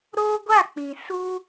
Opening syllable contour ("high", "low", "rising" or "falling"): high